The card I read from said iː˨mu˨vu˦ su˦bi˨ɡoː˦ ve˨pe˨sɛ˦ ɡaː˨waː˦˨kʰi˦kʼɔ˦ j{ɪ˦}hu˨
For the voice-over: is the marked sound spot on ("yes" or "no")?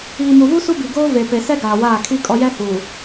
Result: no